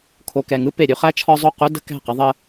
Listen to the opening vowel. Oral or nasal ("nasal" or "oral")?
oral